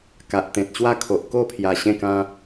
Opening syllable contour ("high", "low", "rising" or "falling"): low